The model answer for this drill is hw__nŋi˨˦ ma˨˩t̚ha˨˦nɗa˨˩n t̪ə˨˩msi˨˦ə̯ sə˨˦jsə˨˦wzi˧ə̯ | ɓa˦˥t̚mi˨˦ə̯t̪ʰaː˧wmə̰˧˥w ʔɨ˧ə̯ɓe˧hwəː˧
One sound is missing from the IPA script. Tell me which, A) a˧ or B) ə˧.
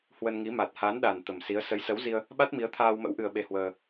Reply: B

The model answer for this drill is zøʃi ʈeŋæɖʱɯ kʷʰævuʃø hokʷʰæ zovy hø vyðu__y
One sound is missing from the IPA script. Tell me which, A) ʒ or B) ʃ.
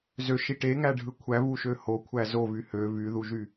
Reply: A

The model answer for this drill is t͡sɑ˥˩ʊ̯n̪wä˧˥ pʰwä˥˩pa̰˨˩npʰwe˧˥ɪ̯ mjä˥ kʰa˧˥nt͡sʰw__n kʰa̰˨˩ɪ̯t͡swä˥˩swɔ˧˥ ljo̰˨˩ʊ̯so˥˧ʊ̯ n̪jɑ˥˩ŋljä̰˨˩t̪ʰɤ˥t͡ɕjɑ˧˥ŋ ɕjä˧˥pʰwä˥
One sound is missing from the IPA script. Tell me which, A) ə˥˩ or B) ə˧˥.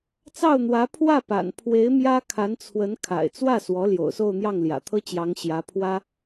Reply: B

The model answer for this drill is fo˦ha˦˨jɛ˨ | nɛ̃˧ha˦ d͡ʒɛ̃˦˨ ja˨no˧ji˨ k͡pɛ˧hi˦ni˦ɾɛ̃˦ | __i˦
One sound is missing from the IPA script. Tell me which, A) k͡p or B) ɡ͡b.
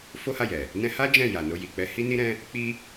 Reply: A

